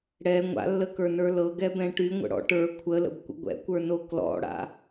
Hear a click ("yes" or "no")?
no